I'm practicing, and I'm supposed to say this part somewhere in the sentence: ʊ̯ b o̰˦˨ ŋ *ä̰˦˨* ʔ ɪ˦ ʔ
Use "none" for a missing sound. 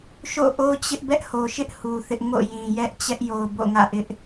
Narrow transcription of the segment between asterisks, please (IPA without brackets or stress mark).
ä̰˦˨